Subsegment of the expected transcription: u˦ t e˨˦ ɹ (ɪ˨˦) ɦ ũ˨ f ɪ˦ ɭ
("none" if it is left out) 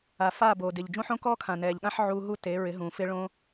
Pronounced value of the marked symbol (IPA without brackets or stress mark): ɪ˨˦